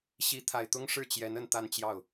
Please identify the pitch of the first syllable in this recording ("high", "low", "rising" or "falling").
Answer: rising